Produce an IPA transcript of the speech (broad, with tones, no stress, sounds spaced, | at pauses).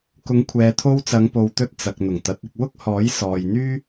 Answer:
k ʊ˨˧ ŋ kʷʰ ɛː˨ t̪ʰ o˧ w t͡s ɐ˨˧ ŋ p o˨ w t̪ ɵ˧ t̚ t͡s ɐ˨ k̚ n̪ ʊ˨˩ ŋ t̪ ɐ˨˥ t̚ ɪ˧ k̚ w ʊ˥ k̚ h ɔː˨˥ j s ɔː˧ j n̪ yː˥